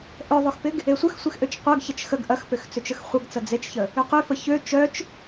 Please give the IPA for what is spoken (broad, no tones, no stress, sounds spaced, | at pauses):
ʔ œ ðˤ ø x p ɪ ɡ | e sʷ œ x sʷ e x ʔ ø t͡ʃ qʷ ɐ ɡ ç ɐ t͡ʃ x ə ɡ ʔ ɐ x p ʏ x t͡s ø t͡ʃ ə x χʷ ɐ ɡ t͡s ɐ d͡z e t͡ʃ ç ə | ø q ʏ f ə ç ø t͡ʃ œ t͡ʃ